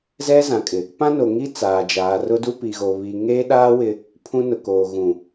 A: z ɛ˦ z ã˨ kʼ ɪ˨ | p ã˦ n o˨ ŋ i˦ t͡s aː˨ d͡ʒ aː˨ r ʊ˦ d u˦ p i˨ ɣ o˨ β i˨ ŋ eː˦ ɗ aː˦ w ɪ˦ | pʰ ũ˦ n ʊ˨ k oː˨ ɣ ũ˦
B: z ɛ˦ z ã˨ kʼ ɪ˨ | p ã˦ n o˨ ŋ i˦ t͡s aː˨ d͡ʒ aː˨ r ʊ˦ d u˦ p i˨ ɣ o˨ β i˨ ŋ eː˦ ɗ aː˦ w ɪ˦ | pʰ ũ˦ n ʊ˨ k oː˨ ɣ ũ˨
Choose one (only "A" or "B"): B